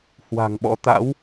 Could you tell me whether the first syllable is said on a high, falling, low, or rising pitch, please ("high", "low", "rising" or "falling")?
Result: low